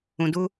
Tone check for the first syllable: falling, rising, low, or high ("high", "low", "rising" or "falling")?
low